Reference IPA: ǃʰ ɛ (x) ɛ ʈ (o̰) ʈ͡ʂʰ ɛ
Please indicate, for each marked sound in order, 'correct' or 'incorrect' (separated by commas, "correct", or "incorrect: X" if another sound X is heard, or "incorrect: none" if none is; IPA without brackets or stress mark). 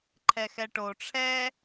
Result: correct, incorrect: o